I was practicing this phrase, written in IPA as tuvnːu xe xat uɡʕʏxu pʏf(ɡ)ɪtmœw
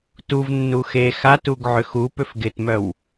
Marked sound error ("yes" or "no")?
no